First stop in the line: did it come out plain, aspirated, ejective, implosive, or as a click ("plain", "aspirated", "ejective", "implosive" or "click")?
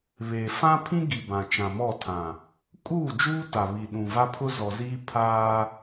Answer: aspirated